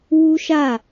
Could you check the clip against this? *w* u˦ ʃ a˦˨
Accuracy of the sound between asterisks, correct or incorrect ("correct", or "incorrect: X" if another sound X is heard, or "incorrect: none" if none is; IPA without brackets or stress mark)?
correct